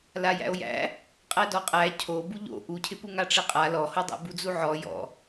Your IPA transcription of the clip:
l a j æ̰ o̯ j æ̰ | qʼ æ d ɔ qʼ æ cʰ o b u ʎ o̰ ʔ u cʰ ɪ p u ŋ a ʈ͡ʂ ɪ qʼ a l ɔ h o dˤ æ̰ b u d͡z u ʕ ɔ j ɔ̰

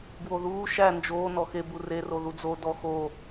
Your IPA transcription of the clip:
ɡ w o ð uː ʃ æ n d͡ʒ oː n ɔ x e b u r e r o ð u d͡z o d ɔ x o

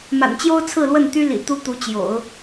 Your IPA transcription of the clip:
m a̰˨˩ n t͡ɕ j o˥ ʊ̯ t͡sʰ ɹ̩˥˧ l w ə˥˩ n t̪ y˥ l ḭ˨˩ t̪ u˥ t̪ u˧˥ t͡ɕ j o̰˨˩˦ ʊ̯

